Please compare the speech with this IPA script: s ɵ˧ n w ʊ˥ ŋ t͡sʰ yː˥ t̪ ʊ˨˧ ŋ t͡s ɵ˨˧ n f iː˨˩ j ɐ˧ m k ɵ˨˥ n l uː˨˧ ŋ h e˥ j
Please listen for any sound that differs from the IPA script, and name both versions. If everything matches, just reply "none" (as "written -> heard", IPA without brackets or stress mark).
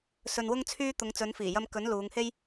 none